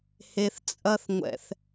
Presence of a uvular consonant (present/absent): absent